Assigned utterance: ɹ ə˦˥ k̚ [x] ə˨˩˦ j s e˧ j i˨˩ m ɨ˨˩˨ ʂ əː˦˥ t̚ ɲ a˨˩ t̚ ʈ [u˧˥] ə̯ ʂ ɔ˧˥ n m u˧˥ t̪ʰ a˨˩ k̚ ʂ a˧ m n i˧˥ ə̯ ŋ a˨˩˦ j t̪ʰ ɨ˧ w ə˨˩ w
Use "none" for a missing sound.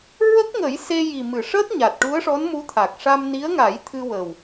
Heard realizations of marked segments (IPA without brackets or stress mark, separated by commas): ŋ, u˧˥